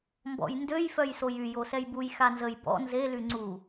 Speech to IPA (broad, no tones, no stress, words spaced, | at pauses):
mbɔ̰jndøj fœjsojy josɛjbuj xanzəj bɔ̰ nze lyŋ͡ǀu